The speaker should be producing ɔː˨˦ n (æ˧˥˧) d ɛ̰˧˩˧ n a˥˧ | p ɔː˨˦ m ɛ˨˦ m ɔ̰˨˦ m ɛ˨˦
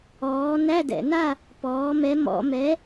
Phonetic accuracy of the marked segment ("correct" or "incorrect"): correct